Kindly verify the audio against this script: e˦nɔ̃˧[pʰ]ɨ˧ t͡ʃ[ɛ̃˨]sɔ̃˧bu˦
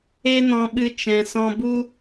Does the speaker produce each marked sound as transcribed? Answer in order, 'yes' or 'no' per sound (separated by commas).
no, yes